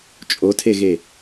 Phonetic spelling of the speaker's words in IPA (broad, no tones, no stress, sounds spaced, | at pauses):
t͡ʃʼ o tʰ e ɣ e